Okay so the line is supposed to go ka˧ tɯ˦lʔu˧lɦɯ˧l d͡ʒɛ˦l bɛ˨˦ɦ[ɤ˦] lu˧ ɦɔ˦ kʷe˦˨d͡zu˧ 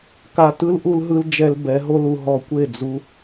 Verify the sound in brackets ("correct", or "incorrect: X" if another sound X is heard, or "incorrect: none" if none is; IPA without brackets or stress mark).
incorrect: o˦